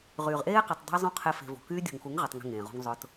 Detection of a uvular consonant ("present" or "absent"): present